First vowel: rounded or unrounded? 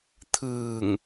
unrounded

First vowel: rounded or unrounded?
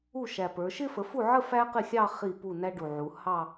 rounded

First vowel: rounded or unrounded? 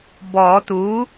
rounded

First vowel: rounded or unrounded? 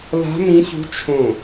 unrounded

